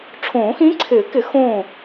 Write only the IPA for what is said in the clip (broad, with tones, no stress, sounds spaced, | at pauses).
ʈ͡ʂʰ õː˨˩˦ x ĩ˧˥ ǀʰ ɪː˨˩˦ k ɪ˨˩˦ x õ˥˨